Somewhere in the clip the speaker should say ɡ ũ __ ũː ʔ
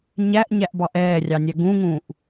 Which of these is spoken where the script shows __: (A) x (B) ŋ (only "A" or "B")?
B